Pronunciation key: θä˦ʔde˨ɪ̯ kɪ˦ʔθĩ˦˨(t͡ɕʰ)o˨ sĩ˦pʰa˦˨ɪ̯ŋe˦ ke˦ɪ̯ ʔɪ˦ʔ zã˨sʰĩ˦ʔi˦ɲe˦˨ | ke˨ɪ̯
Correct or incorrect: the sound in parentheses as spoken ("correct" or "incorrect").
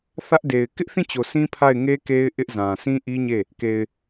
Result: incorrect